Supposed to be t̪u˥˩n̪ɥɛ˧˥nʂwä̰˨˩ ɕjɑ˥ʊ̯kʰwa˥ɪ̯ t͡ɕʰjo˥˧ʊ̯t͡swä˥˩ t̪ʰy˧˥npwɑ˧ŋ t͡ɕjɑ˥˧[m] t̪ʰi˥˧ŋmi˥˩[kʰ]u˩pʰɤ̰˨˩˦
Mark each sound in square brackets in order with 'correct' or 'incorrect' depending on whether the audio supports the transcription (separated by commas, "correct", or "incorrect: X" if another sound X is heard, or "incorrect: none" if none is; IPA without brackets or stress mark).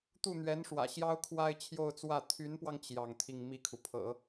incorrect: ŋ, correct